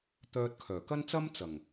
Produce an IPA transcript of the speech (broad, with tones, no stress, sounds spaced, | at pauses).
t̪ œː˧ t̚ kʰ œː˨˩ k ɐ˥ n t͡s ɐ˥ m t͡s ɐ˨˩ ŋ